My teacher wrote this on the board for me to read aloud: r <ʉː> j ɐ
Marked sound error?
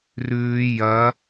no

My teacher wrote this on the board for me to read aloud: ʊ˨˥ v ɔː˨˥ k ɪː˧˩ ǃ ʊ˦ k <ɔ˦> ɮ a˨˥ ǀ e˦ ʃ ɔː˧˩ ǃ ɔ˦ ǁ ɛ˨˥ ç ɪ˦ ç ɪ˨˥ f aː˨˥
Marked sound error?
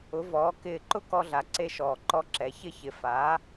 no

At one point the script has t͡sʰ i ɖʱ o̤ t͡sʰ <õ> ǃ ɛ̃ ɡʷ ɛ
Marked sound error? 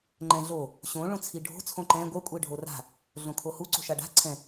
no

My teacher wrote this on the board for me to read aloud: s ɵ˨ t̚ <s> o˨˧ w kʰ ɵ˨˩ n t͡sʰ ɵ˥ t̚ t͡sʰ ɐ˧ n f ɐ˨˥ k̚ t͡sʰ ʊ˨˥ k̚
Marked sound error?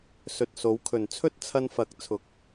no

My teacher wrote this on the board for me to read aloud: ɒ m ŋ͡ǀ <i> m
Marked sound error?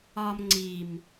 no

